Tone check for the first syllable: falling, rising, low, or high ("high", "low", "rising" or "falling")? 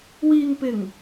low